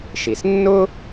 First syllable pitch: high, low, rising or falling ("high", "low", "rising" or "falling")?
low